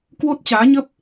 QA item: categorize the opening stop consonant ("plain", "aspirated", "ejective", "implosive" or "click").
plain